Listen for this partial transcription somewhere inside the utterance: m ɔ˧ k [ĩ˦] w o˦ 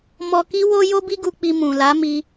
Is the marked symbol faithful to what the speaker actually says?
no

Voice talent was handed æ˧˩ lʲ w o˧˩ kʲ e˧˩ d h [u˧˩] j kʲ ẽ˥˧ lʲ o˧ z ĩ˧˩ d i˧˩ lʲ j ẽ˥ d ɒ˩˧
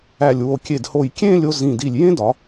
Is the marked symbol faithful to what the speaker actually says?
no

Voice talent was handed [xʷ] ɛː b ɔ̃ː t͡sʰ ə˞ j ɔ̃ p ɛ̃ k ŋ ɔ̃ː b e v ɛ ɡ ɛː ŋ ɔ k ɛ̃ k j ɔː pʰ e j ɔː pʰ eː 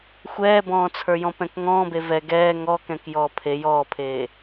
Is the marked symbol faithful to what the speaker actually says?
yes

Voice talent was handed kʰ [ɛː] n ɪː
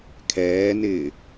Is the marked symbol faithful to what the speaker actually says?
yes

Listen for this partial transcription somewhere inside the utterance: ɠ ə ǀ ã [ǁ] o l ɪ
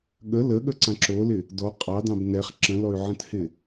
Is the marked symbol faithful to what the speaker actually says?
yes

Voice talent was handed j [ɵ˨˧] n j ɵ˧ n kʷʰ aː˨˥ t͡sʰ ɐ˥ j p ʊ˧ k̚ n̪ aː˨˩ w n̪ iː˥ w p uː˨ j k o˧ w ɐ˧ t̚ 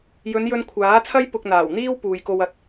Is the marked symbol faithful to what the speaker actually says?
yes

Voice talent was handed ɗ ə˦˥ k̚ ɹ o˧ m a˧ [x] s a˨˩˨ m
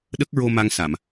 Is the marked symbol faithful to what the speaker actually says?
no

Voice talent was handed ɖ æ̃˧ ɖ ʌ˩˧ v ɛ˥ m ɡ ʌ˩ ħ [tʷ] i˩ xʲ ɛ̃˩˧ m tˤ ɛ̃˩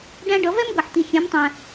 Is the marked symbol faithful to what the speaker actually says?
no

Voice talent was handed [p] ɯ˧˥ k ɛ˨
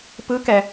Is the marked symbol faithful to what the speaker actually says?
yes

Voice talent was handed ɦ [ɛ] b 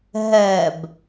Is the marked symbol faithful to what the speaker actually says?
yes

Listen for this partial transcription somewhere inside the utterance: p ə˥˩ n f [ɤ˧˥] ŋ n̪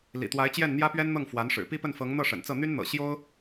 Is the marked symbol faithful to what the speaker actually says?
yes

